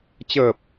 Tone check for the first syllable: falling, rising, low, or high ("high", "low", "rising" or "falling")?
low